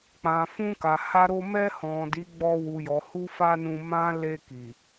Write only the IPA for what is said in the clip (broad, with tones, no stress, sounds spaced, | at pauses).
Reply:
k͡p ã˨ f ũ˧ k a˨ h a˧ ɾ o˧ m ɛ˧ h ɔ̃˨ d i˨˦ ɡ͡b ɔ˧ w u˨ j ɔ˨ h u˧ f a˧ n ũ˧ m ã˦ l e˧ k i˨